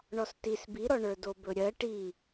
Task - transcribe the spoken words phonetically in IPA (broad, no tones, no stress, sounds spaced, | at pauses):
ɳ ɔ s t i s b i ɾ ɔ ɳ ə˞ d o b ɵ ɾʲ ɜ ʈ i